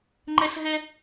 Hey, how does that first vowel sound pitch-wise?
high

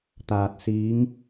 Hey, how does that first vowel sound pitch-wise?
low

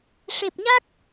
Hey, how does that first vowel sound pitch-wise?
low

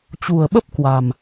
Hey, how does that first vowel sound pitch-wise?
low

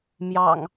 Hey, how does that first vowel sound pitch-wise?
low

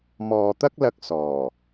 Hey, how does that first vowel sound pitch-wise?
low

